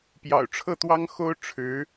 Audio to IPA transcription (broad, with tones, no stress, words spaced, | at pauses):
pjɑ̰˨˩ʊ̯ʈ͡ʂʰɤ˥˩t̪wɑ˥ŋ xo˥ʊ̯ʈ͡ʂʰɻ̩˧˥